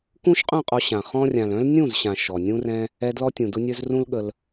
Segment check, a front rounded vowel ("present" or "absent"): present